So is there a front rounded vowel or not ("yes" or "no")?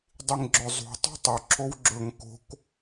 no